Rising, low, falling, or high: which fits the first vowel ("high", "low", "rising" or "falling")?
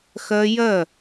high